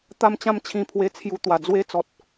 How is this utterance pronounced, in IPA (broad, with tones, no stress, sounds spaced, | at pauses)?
t̪ a˥˧ m t͡ɕ ã˥˧ m t͡ɕʰ ĩ˧ pʰ w e˧ t͡sʰ j u˧ t̪ w a˨˩ d͡z w e˦ t͡s ɔ˨ t̚